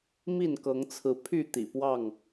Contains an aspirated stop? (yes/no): yes